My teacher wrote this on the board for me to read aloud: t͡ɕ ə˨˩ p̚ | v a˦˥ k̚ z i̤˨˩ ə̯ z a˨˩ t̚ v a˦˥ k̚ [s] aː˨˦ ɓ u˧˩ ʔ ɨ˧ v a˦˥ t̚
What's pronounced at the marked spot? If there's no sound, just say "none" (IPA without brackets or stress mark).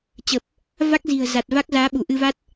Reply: z